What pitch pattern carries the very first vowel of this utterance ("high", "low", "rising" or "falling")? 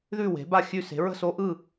falling